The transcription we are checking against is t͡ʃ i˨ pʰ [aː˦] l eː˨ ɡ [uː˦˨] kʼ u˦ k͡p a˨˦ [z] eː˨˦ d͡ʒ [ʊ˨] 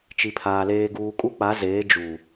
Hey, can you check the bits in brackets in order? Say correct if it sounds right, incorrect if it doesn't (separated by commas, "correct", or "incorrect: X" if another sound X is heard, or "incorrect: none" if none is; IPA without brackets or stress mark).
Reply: incorrect: aː˨, incorrect: uː˨, correct, incorrect: u˨